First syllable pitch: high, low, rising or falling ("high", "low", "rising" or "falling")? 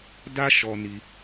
high